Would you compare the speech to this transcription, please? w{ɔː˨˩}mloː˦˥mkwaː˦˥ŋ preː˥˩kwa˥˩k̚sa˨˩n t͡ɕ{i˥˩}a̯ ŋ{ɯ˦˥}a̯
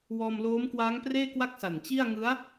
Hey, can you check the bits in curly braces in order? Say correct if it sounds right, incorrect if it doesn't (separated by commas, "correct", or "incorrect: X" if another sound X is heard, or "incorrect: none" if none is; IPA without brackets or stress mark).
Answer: incorrect: ɔː˧, correct, correct